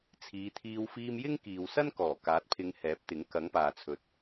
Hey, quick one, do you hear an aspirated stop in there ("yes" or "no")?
yes